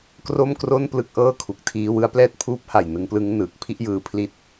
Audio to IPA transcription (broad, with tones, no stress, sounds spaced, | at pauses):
k r o˥˩ m k r o˥˩ n p l ɯ˦˥ k̚ ʔ ɤː˥˩ kʰ u˨˩ k̚ tʰ iː˦˥ w ɯ˦˥ a̯ p l ɛː˥˩ t̚ pʰ uː˦˥ p̚ h a˨˩ j n ɯ˧ ŋ p l ɯ˦˥ ŋ n ɯː˨˩ k̚ pʰ i˥˩ ʔ j ɯː˧ pʰ l i˦˥ t̚